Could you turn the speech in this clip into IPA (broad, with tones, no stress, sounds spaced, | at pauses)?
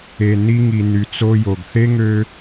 e˨ n i˧ ŋ i˨ n y˨ t͡s o˧ j o˨ ɡ θ e˦ ŋ ø˧